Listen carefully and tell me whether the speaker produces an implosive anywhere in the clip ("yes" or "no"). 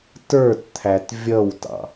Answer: no